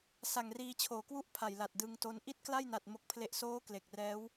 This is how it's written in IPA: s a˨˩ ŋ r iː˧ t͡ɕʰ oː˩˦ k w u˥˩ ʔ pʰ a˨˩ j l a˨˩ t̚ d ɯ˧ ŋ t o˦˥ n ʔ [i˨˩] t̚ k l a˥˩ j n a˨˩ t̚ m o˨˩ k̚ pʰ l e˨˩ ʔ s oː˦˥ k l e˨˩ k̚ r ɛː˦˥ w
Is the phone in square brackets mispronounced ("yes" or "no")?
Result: yes